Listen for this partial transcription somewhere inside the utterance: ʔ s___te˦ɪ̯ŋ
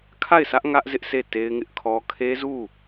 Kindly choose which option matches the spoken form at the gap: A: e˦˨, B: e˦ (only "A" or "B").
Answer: A